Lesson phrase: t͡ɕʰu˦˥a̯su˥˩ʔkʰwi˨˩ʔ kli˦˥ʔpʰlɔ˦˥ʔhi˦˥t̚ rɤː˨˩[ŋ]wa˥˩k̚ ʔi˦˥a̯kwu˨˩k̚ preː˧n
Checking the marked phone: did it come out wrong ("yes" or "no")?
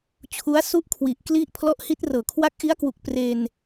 yes